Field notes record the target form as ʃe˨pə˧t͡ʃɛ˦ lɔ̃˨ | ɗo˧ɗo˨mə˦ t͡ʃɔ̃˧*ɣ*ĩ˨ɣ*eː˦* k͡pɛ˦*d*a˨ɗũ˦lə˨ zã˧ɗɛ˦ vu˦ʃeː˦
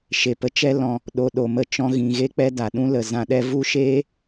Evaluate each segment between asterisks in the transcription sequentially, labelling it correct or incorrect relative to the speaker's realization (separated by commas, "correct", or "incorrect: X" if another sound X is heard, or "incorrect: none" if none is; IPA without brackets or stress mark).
correct, incorrect: e˦, correct